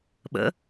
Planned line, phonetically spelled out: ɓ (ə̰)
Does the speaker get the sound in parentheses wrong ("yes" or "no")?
no